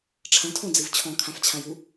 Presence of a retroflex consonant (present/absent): present